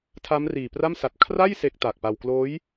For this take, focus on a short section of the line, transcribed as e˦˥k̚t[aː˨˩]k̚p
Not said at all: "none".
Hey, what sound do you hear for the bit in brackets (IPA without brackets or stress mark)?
a˨˩